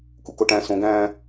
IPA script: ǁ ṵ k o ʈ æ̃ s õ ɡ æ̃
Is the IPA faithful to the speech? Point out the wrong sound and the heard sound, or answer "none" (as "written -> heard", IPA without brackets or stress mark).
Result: ǁ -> k